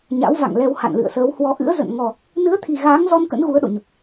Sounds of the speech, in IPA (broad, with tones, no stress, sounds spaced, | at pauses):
ɲ a̰˧˥ w v a̰˧˨ ŋ l ɛ˧ w h a̰˧˨ n l ɨ̰˧˨ ə̯ s əː˨˦ w h w ɔ˨˦ ʔ ɨ̰˧˥ ə̯ z ə̰˧˨ n ŋ ɔ˨˩ | n ɨ˨˦ ə̯ t̪ʰ i˨˩ ɣ aː˨˦ ŋ z ɔ˧ n k ə̰˧˥ n ɣ u˨˦ ə̯ ɗ o̰˧˨ ɲ ə˨˩ p̚